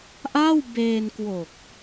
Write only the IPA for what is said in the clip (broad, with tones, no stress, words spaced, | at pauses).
ʔa˥˩wbeː˧nkwo˨˩k̚